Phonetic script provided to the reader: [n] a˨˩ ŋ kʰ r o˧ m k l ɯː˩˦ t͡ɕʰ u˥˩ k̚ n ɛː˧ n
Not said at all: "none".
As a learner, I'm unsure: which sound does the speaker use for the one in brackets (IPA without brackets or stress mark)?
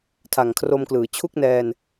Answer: tʰ